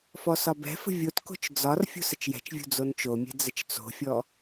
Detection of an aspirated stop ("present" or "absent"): absent